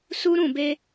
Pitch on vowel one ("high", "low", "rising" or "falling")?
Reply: high